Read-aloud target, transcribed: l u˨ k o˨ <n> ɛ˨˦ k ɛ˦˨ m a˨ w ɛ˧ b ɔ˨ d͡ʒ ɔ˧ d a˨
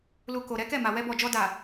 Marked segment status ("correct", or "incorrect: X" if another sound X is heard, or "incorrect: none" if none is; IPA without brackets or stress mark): incorrect: ɾ